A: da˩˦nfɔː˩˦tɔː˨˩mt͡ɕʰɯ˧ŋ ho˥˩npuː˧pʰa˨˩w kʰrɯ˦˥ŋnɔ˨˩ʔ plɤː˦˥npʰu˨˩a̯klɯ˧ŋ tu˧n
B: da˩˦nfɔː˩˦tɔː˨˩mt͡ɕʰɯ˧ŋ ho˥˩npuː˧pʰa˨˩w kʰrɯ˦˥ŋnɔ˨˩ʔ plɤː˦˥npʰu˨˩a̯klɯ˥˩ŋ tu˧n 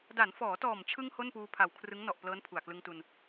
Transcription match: A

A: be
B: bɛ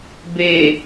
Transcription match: A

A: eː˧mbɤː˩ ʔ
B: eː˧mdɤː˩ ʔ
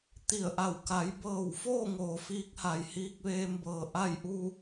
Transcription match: A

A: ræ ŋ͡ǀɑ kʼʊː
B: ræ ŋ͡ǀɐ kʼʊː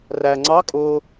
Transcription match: A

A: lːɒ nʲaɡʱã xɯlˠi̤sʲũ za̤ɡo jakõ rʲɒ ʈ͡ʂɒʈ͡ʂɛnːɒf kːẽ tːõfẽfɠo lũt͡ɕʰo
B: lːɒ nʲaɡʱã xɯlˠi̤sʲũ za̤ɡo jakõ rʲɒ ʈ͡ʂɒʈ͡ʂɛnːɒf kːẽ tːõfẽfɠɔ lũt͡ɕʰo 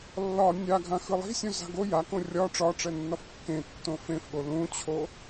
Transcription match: A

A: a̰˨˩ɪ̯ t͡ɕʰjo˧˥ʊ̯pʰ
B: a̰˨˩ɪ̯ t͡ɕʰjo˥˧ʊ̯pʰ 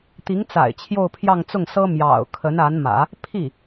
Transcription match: B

